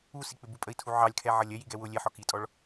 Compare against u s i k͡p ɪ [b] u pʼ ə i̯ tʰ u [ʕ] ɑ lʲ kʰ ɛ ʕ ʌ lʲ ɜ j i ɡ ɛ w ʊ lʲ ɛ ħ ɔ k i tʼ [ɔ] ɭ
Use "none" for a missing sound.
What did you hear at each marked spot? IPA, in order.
b, ʕ, ɔ

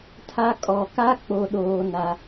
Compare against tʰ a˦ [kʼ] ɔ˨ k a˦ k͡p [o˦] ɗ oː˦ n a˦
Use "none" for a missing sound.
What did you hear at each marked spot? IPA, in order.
kʼ, o˦

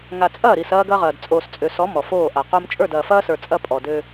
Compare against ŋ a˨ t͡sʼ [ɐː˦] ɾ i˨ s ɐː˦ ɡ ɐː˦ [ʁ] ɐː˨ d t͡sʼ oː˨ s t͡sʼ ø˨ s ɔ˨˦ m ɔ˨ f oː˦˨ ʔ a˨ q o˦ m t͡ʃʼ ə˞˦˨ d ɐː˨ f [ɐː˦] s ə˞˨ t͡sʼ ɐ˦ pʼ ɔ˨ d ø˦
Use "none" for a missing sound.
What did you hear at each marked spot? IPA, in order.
ɐː˦˨, ʁ, ɐː˦

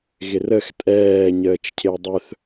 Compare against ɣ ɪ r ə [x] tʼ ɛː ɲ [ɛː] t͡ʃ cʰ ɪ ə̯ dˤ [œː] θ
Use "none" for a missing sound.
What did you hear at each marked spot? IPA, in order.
x, əː, œ

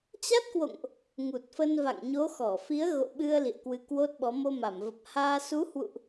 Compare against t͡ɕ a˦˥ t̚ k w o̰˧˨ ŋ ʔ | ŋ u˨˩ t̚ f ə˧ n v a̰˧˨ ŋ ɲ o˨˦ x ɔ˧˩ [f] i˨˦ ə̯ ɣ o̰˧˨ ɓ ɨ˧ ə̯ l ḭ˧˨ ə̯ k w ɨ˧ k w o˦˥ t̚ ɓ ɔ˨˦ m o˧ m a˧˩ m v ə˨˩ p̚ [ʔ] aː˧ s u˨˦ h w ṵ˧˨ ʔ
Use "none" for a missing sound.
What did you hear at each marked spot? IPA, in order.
f, h

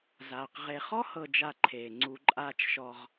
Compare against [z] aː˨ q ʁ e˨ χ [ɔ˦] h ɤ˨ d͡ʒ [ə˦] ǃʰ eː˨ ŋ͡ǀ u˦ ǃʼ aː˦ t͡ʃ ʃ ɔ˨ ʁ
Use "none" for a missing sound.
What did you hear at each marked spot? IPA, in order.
z, ɔ˦, a˦

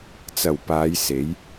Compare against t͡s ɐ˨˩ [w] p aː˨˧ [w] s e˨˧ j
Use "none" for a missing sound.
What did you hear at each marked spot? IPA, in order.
w, j

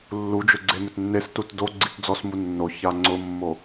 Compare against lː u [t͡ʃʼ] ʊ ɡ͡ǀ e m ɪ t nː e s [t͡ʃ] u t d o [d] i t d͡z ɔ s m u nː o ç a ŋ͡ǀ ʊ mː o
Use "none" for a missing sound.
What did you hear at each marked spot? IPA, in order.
d͡ʒ, t, ɡ͡ǀ

